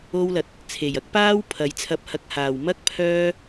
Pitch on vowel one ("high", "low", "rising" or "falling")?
high